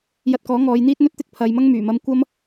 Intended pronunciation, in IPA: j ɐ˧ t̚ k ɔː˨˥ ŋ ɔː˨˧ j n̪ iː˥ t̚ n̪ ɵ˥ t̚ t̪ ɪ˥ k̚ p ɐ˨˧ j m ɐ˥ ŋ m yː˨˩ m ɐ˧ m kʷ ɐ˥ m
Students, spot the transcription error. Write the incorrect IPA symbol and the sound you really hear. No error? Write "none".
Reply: p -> pʰ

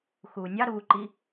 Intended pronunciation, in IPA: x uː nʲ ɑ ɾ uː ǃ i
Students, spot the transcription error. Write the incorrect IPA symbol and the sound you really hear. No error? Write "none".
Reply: none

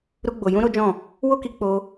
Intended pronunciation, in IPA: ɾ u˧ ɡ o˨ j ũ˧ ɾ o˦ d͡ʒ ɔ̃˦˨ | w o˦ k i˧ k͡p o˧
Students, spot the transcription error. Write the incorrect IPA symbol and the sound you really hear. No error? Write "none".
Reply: ɡ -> ɡ͡b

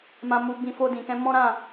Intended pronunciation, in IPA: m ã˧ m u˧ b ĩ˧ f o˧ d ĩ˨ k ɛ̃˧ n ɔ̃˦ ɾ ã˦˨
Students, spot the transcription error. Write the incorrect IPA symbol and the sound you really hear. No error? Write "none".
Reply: n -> m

